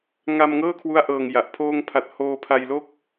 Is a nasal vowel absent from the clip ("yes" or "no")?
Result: yes